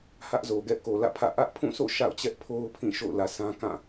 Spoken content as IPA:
h ä˦ ʔ z o˨ ɡ ɛ˦ ʔ k o˨ l ä̰˦˨ pʰ ä̰˦˨ ʔ ä˦ ʔ pʰ ũ˦˨ s o̰˦˨ ʃ a̰˦˨ ʊ̯ t͡ɕ ɛ˦ ʔ pʰ o˦ ʊ̯ pʰ ĩ˦˨ ʃ o̰˦˨ ʊ̯ l ä˨ sʰ ã˦ k ã˦˨

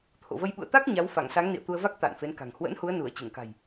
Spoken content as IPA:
t̪ʰ o̰˧˨ v ə˧ j ɓ ṵ˧˨ ə̯ t̪ a˦˥ k̚ ɲ a˨˦ w f a˧˩ ŋ s a˨˦ ŋ n ḭ˧˨ ə̯ t̪ u˧ ə̯ v a˦˥ k̚ t̪ a̰ː˧˨ n f e˨˦ n k a̤˨˩ ŋ h w ə̰˧˥ n h u˨˦ ə̯ n u˧˩ ə̯ t͡ɕ ɨ˧˩ ŋ k a̤˨˩ j

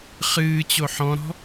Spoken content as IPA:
χ ɨː t͡ɕ o ħ ɔ̃ ɾ ɔ̤

